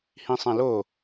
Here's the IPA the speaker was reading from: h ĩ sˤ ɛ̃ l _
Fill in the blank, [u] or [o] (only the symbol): o